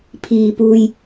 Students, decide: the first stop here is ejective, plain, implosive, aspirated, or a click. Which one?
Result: aspirated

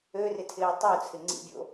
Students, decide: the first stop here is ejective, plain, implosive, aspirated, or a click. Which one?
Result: aspirated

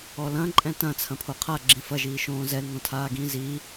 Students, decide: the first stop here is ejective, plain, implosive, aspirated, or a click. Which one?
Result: click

